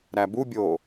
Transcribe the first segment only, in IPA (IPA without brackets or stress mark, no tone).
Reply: ɾ